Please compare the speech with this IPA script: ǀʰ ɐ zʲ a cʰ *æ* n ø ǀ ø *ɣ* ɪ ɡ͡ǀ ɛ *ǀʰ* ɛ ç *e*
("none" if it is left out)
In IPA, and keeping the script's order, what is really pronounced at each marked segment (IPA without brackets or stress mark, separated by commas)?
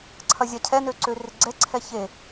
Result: ɛ, r, ǀʰ, e